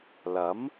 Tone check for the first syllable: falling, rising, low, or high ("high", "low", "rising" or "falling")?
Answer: rising